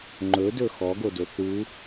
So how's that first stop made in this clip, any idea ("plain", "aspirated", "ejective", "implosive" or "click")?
click